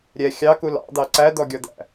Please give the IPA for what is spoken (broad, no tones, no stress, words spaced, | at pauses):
ɾʲɛ xʲɑku lɑ̰d̪ɑ ǀæd̪ɔɡʲɔd̪æ̰